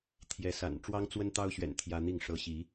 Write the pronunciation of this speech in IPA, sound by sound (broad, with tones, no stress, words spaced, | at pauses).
t̪ʰjɛ˨˦sa̰˨˩n ʈ͡ʂwɑ˦ŋt͡swə˦nt̪ɑ˦ʊ̯ɕɥɛ̰˨˩n t̪ʰjä˦n̪i˥˨ŋʂɤ˦ ɕi˨˦